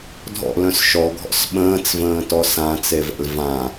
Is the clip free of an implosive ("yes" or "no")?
no